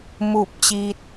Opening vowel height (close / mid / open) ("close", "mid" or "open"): close